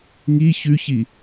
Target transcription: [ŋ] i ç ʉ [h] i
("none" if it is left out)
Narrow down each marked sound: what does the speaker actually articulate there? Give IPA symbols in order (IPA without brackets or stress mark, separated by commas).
ŋ, ç